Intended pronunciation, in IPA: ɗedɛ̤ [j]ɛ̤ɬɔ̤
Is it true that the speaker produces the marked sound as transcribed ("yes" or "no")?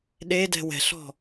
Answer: no